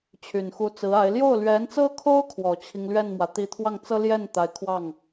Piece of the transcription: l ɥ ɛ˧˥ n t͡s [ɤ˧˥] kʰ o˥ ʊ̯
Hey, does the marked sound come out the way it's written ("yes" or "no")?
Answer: no